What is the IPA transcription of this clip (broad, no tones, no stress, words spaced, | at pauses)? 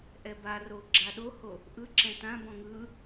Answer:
ʔɛbaro ɡ͡ǁaɗoho | ʔɯǁɛ̃ tãbɔ̃ ŋɯ